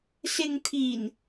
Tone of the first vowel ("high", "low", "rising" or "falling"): low